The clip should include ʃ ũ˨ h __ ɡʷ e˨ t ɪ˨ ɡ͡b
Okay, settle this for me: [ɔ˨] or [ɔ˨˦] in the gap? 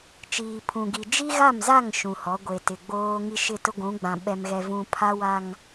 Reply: ɔ˨˦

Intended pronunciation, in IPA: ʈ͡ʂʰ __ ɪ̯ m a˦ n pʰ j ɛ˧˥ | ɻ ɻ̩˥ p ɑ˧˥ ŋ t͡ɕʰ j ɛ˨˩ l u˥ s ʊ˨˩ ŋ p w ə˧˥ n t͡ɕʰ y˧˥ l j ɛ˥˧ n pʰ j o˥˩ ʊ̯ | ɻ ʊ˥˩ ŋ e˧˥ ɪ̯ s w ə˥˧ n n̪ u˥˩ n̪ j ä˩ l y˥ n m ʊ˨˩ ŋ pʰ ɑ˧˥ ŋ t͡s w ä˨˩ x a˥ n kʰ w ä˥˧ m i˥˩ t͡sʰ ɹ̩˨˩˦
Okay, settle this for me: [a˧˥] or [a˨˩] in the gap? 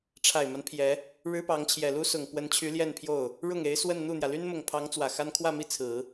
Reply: a˨˩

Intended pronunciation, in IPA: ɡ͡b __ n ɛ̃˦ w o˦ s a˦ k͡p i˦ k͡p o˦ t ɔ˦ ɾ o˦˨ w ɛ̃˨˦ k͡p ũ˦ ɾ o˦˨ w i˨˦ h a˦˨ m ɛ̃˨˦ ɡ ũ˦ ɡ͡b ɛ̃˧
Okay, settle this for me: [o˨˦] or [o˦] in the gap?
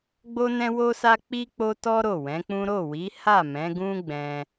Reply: o˦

